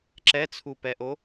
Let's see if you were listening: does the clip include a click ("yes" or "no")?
yes